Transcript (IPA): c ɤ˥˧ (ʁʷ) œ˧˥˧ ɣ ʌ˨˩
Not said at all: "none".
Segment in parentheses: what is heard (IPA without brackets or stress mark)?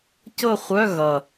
χʷ